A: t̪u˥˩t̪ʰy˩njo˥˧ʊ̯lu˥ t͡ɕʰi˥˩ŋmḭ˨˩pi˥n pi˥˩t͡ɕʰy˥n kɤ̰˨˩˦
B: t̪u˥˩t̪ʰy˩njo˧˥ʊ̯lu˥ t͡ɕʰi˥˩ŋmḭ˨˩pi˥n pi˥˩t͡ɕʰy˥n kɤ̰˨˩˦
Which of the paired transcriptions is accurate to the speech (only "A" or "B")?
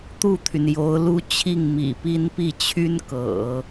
B